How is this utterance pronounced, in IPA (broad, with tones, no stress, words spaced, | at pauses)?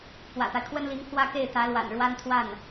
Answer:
pwä̰˨˩t̪a˦ɪ̯kʰwə˥nli˧˥ŋ pʰwä˥ke˥˩ɪ̯ t̪ä˧˥lwa̰˨˩n ɻwa˥n t̪ʰwa˥˩n